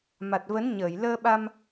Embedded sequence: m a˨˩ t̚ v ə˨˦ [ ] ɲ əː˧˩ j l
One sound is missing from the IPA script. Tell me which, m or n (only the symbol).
n